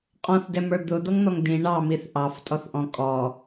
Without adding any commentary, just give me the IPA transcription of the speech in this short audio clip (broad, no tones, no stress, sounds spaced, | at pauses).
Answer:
qʼ ɔ̃ θ d ɛ m ə˞ d̪ ʊ d̪ ʌ ŋ n̪ ɔ ŋ d ĩ ɳ ɑ m i θ ʔ ɑ f tʼ ɔ θ ʔ ɔ̃ kʼ ɔ